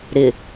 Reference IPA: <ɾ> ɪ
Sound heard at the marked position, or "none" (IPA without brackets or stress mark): ɾ